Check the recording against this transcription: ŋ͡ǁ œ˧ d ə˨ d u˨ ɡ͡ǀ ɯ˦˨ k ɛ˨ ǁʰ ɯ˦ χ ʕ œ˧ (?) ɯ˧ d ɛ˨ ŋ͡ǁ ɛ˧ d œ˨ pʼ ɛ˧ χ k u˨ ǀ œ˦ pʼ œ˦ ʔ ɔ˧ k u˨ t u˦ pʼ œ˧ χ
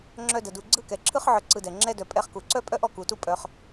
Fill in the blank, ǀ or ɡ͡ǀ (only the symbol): ǀ